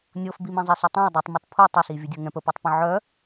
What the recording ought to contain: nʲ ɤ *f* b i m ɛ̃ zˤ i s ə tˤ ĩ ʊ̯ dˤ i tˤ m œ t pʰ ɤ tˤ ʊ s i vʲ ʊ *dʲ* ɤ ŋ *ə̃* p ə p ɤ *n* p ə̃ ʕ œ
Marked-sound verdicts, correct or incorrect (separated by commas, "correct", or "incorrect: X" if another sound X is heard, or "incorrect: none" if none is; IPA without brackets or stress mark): correct, correct, incorrect: ɛ̃, incorrect: tˤ